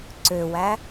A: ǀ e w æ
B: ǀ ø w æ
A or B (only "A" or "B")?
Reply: B